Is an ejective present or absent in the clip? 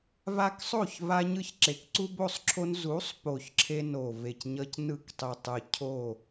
absent